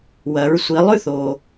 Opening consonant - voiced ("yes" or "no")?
yes